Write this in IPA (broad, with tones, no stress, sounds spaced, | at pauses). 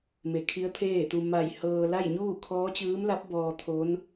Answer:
m e˧˩ kʰ i˧˥ ə̯ t̪ʰ eː˥˨ t̪ u˧ m a˧˩ j h ɤː˧ l a˥˨ j ɲ uː˥˨ kʰ ɔː˧˥ t͡ɕ ɯː˧˥ m l a˧˥ p̚ b ɔː˧ t̪ʰ o˧˥ n